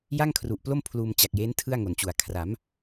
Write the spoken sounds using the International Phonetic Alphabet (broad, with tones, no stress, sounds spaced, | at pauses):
j a˥˩ ŋ kʰ r u˨˩ ʔ p l o˥˩ m pʰ l uː˧ m t͡ɕ a˨˩ k̚ j eː˦˥ n tʰ ɯ˥˩ a̯ ŋ o˨˩ n t͡ɕ u˨˩ a̯ kʰ r a˩˦ m